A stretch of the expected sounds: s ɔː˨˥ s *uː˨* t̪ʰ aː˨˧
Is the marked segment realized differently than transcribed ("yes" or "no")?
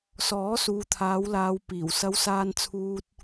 no